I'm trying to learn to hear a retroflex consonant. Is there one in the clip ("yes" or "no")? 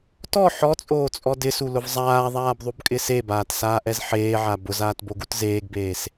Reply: no